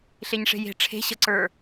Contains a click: yes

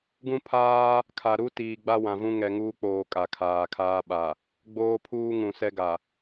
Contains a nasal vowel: yes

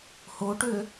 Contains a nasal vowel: no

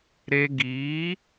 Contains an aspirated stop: no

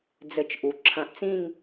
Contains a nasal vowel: yes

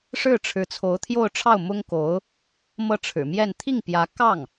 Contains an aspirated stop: yes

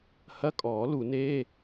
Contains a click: no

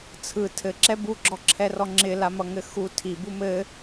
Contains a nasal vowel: no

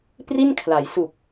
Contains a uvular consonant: no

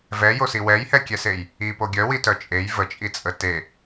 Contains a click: no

